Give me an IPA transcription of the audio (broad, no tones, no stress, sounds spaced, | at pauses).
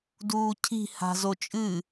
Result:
d uː cʰ i̤ h a̤ z o t͡ʃʼ ɨ